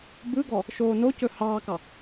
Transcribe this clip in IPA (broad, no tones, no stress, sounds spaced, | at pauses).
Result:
b ɯ ɡ ɔ | ʃ oː n o c ɵ h ɑː k ɑ